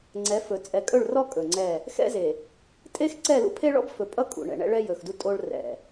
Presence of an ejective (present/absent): present